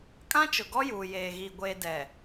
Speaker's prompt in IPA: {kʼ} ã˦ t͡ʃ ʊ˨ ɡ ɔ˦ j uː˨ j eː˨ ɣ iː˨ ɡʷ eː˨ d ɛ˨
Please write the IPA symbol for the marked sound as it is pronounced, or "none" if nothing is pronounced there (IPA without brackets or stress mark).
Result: kʼ